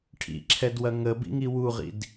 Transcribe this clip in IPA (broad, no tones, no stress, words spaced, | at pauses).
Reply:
ʈʰḭǁʰɛdwɐ ŋəbḭŋi wuʁḭd